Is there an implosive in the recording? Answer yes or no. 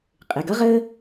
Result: no